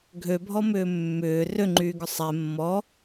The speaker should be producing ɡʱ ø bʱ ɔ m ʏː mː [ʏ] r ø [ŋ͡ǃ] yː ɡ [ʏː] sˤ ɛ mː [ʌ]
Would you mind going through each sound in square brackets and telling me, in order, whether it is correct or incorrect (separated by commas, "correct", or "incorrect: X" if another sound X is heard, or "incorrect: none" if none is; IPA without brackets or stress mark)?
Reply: incorrect: ʏː, correct, incorrect: ʏ, incorrect: ɔ